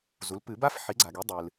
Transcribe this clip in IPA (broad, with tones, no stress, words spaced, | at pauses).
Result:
zu˩˥lpɨ˨˩˦ba˥f ħi˩˥ɡ͡ǀa˩ɡi˩˥ dˤɨ˩l